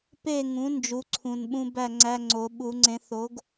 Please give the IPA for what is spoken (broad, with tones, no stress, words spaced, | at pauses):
pe˥˨ŋũ˩˥ nd͡ʒu˩˥ǀʰũ˨˩nɓũ˧ bæ˥˨ŋ͡ǀæ˧˥˧ ŋ͡ǀo˨˩˦ ɓu˨˩˦ŋ͡ǀẽ˩˥θ o˩˥ɡ